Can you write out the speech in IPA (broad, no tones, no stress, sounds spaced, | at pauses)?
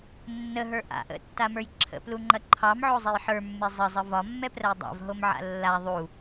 nː ə ɦ ə˞ ʔ a̰ ʔ ə̰ tː a m ə˞ j ǁʰ ə̰ p l u ŋ͡ǃ ɐ ǃʰ ɑ m ʕ o zˤ e j ħ ə˞ mː e zˤ ə zˤ ə v ɒ mː ɛ p r ɐ j dˤ a̰ v ɦ o m ʕ a̰ lː a ðˤ u